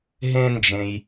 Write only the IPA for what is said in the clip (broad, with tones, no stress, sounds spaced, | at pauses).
ɦ ẽ˧ n d͡ʒ ẽ˩ j